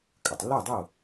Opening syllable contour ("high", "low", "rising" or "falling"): low